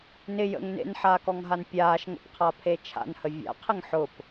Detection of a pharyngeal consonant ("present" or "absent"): present